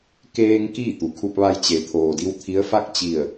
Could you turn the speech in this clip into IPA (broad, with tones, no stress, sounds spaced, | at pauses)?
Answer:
k eː˧ ŋ k iː˥˨ t̪ u˩ kʰ u˧ p̚ ʋ a˧ j t͡ɕ e˩˧ t̪ʰ oː˩ d i˧˥ w t̪ʰ i˧˥ ə̯ f a˥˨ k̚ t͡ɕ i˧˩ ə̯